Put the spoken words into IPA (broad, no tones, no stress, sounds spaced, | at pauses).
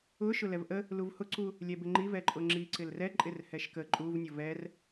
ʊ ʃ ʊ l ɛ v ʔ ə | l u v h ʊ ǀ u | lʲ ɛ b ɪ ŋ͡ǃ i v ɛ ǃʼ ʊ ŋ͡ǁ i ǀ ɪ l r ɛ ǃʼ ɪ r h ɛ ʃ k ə ǃʼ u v nʲ ʊ v ɛ r